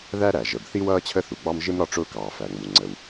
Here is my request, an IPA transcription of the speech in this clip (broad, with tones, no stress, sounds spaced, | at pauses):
ð æ˥ ɾ æ˩ ʒ ə˩ b θ i˥ w ʌː˥ t͡ɕʰ ə˥ θ u˩ ɡ͡b ɑ˥ m ʒ ɪ˥ m ɾ ɒ˥ ʈ͡ʂ ʊː˥ k ɑː˩ f æ˩ ŋ͡m u˩ ŋ͡ǀ ə˩ w